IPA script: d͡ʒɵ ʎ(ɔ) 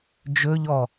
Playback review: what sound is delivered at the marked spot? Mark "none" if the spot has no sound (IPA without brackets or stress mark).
ɔ